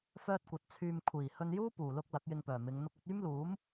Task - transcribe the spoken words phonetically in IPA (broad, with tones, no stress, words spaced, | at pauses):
fœː˥t̚kʷɐ˨˥t̚ t͡sʰyː˧m kʷʰiː˨˩ hɵ˧njuː˥ puː˨˩lʊ˥k̚ lɐ˨˥k̚jɪ˧ŋpœː˨˩ mɪ˨˧ŋ n̪ʊ˧k̚ɐ˨˥t̚ yː˥mluː˨˥m